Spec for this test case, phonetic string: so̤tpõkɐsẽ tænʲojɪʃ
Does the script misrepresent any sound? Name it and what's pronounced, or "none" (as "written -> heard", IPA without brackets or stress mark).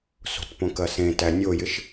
none